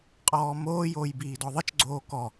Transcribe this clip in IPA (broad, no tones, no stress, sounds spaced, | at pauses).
qʼ ɔː m oː j oː j b iː d ɔ ðˤ ɘ t͡ʃ ɡ͡ǀ oː k ɔ